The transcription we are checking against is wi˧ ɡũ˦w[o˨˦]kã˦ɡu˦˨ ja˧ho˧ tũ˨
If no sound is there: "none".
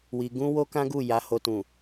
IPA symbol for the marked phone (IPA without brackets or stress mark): o˦